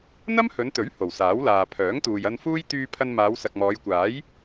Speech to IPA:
n̪ ɐ˥ m h ɵ˨˧ n t̪ ɵ˨˥ ɥ h o˨˩ w s aː˨˥ w l aː˨ pʰ œː˨˥ ŋ t̪ uː˨ j ɐ˧ n f uː˥ j t̪ yː˧ pʰ ɐ˧ n m aː˨˧ w s ɐ˨ k̚ m ɔː˨˧ j kʷ aː˨˥ j

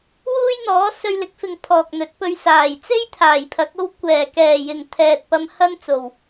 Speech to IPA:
w uː˥ j n̪ ɔː˨˥ s ɵ˧ ɥ l ɪ˨˥ k̚ f ɪ˨ ŋ pʰ ɔː˨ k̚ n̪ ɵ˨˥ t̚ p ɵ˧ ɥ s aː˨˩ j t͡s e˥ j t̪ʰ aː˨˩ j pʰ ɐ˨˥ k̚ o˥ w kʷ ɛː˨˩ k ɛː˨˩ j ɪ˨˩ ŋ t̪ʰ ɛː˨ t̚ p ɐ˧ m h ɐ˥ n t͡s o˨˩ w

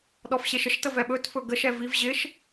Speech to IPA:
ɗ ɔ f ɕ e ʃ ə ʃ t ə v ɛ ɓ ɵ t f ɵ ɡ ə ʃ ɛ v i v ʑ ɪ ʃ

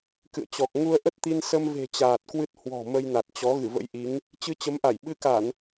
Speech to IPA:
k ɨ̰˧˨ ə̯ t͡ɕ ɔ˨˩ k̚ ŋ u˧ ə̯ ʔ ə˦˥ t̚ t̪ i˧ n s ə˧ m v e̤˨˩ t͡ɕ aː˨˩ t̚ k w ɨ˦˥ t̚ h w ɔ̤˨˩ m ə˧ j n a˨˩ t̚ t͡ɕ ɔ˨˦ ɣ ɨ˧˩ v ə̰˧˥ j ʔ i˨˦ ŋ | t͡ɕ ɨ˧ t͡ɕ ə˨˦ m ʔ a˧˩ j ɓ ɨ˧ k a˧˩˨ n

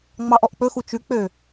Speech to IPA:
ŋ͡m ɑ ʔ ɔ ʔ k͡p ɵ x u t͡ʃ ʉ k͡p ø

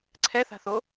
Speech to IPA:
ǀʰ ɛ θ a̤ θ o

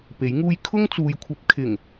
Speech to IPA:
p e˨˥ j ŋ uː˥ j kʰ ʊ˥ ŋ t͡s uː˨ j kʷʰ ɐ˧ p̚ kʰ ɪ˨˩ ŋ

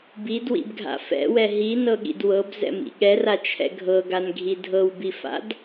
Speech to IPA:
b i d w ḭ b ɡʱ a̰ f ɛ̰ w ɛ ɦ i n ɤ ɠ ḭ d w ɤ b z ɛ̰ m ḭ ɠ ɛ r a t͡ʃʰ ɛ̰ ɡʱ ɤ ɡ a n ɡʱ i dʱ ɤ w b i f a̰ d

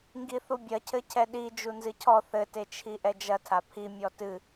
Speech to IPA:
ŋ ɡ i θ u bʲ ɐ cʰ ɘ cʰ ɛ ɗ i d͡ʒ u n z ɨ cʰ ɔ θ ɘ t e t͡ʃʰ i ʔ ɛ d͡ʒ ɐ tʰ a pʰ i mʲ ɔ t ɨ

